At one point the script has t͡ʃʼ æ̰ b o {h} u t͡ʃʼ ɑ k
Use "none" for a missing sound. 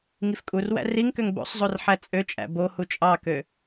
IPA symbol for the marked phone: h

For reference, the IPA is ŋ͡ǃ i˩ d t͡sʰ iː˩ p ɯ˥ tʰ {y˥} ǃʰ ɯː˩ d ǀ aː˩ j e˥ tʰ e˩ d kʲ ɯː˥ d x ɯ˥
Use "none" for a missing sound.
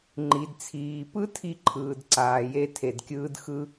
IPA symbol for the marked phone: i˥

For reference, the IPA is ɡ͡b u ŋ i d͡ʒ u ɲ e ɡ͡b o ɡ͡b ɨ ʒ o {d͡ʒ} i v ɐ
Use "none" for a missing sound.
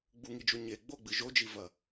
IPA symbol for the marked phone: d͡ʒ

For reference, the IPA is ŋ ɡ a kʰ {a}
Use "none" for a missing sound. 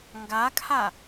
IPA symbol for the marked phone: a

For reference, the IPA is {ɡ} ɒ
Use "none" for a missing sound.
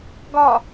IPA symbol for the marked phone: ɡ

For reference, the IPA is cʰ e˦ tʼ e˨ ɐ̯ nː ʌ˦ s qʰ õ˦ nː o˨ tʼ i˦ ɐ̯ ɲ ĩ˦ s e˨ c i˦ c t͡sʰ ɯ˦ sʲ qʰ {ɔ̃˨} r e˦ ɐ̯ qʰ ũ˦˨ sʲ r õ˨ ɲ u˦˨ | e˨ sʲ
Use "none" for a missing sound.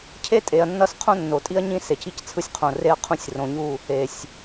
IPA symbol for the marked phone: õ˨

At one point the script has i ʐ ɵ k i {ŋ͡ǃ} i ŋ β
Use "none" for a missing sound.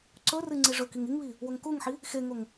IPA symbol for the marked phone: ŋ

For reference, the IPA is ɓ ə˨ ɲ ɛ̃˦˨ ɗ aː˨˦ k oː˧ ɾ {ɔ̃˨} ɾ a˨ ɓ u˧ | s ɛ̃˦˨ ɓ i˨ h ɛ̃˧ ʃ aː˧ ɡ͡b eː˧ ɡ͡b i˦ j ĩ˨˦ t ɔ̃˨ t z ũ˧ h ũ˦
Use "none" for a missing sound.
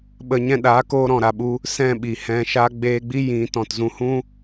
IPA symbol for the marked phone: ɔ̃˨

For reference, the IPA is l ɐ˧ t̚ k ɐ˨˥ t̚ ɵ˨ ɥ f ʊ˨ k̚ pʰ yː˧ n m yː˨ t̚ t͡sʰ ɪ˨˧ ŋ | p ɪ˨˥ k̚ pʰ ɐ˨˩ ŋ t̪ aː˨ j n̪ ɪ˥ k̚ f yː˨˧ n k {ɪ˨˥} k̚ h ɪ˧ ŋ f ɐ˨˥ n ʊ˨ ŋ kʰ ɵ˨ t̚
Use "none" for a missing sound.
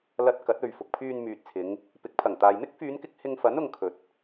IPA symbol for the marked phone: ɪ˥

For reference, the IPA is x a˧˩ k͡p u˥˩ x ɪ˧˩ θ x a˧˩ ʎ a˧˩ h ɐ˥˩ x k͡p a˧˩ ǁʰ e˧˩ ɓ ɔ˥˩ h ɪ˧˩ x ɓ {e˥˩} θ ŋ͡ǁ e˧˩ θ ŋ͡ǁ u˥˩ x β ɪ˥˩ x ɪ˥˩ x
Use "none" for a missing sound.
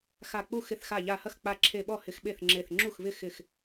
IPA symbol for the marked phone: e˥˩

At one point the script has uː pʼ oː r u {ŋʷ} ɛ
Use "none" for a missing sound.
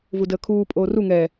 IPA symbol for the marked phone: ŋ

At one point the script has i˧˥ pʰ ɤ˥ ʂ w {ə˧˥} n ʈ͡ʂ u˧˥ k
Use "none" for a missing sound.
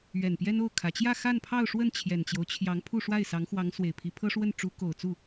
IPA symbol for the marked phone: ə˥˩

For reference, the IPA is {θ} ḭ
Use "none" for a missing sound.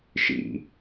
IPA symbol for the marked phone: ʃ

